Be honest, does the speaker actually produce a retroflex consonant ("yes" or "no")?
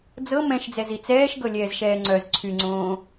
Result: no